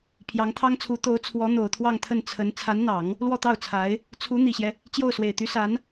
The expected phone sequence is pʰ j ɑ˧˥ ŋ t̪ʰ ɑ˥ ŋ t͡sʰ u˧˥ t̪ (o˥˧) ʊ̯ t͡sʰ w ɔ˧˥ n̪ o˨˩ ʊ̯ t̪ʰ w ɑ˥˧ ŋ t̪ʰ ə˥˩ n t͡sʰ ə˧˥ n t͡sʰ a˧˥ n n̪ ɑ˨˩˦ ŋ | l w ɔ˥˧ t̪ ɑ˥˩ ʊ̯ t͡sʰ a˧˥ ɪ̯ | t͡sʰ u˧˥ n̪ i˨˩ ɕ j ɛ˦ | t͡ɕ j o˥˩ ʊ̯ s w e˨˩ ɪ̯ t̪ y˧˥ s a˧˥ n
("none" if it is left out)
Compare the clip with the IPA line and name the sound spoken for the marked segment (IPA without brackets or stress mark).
o˧˥